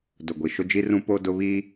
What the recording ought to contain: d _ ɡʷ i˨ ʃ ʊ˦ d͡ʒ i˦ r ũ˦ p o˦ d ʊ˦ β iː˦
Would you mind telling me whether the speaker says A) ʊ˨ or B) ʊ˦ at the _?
A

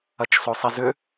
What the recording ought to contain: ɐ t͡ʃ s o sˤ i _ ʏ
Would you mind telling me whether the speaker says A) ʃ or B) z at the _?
B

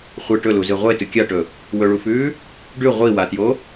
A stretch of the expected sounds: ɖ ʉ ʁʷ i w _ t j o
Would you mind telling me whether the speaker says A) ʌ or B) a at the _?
B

